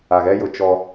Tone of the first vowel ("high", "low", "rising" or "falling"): low